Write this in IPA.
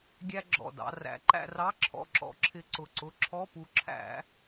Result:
ɡʲæ˧ ɡ͡ǁɔ̰˧˩dɑ̰˧ræ̰˨˥ ǃæ̰˧rɑ˧˥˧ǁʰɔ̰˧˩ ǁɔ̰˧ǁʰɪ˧ǀʊ˧˩ǀʊ˧˥˧ ǁʰɔ˧˥˧pu˧ ǁʰæ̰˧˩˧

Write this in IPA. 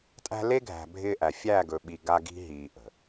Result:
tʼæ̤˦ le˦ɡʱæ̤˨ bʱɪː˦ʔæ˨ fʲæ˦˨ɡɵ˨ɓi˨ ɡa˦ɡi̤˦ɦiː˨ ʔə̤˨

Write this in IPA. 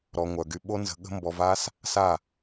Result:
ɾɔ˨ŋʷœ˨ ɡy˧ɓo˦nzə̤˧ɠə̤˦ mbɔ˧va˦s | sa˦˨

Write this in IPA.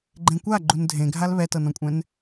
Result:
ɡ͡ǃẽkʷa ɡ͡ǃundʱẽɡʱal βɛtɤnɔ̃kʷʼɛ̃n

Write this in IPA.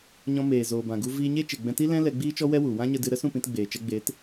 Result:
ɲɔ̃˧meː˨ zoː˨bã˨ ɡu˧viː˧ɲe˦ t͡ʃe˨ɡ͡bɛ̃˧ti˦lɛ̃˦ lɛ˧ɡ͡biː˦t͡ʃɔ˦ wɛ˦wu˨ wã˦ɲə˧dɨ˧ ɾə˦sũ˦˨pĩ˧t ɡ͡beː˨t͡ʃɛ˧ɡ͡beː˨˦t

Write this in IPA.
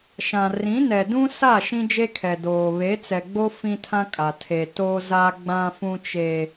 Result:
ʃã˨ rĩ˨˦nɛ˨ dũ˦sa˦˨ ʃĩ˦d͡ʒe˦kʰɛ˨doː˨ βe˨˦t͡sɛ˨ɡ͡bo˦ fĩ˦tʰã˦kʼa˨ tʰe˨ to˦ za˦ɡ͡bã˦ fũ˦t͡ʃe˦

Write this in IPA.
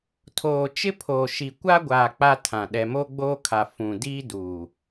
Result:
tʰoː˨t͡ʃɪ˦pʰoː˨ʃi˨ kʷa˦ɡʷaː˨ k͡pa˦tʰã˨ ɗɛ˨mo˦ɡ͡boː˦kʰa˨ fũ˨ diː˦duː˨

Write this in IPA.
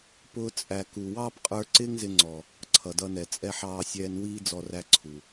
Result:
pʊː˧ t͡sʼæ˨ ku˨ wɑː˦pqʼə˞˧ ǀɪː˦ŋzɪ˧ŋ͡ǀɔ˨ | ǀʰʌ˨dʌ˧nɛ˨t͡sʼɛ˦ ħɑː˧sʲɛː˧n wiː˧d͡zɔ˨ ræ˧ǀʰu˨

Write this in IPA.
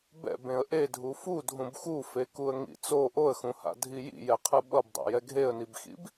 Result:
bɛ̰bẽə̯ ʔedʱu fudʱũb xufekuə̯ŋḭ t͡so ʔoə̯xũha̰dʱi jḭjɛqʰɯ ɓʌbdˤa̰jɛ ɡʱeə̯nibxḭb

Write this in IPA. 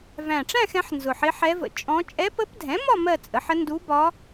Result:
væ̃˨˩ʈ͡ʂæ̃˥˧xɛ̃˩˧ħ nzʊ˨˩ħɪ˧˥ħɛ˧˥və̰˨˩ t͡ʃʼɔ̃˧˥ t͡ʃʼɛ˧˥pə˧˥pdʱɛ̃˩˥mɒ˥˧ mɜ˥˧t͡sʼə˩˥ħə˧˥ ndu˧˥bɒ˧˥

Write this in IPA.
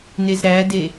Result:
nezɾæde

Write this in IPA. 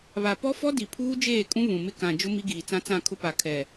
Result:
βa˨pɔ˦fɔ˦ di˨pʰuː˦d͡ʒeː˦˨kʼũ˦ βũ˨mɪ˦ kã˨ d͡ʒʊ˦ mi˦ɡiː˨t͡sã˦ t͡sã˦˨kʰʊ˦pa˨ kʰɛ˨

